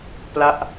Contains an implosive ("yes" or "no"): no